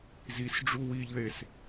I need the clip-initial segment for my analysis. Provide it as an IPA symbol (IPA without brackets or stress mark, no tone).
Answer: z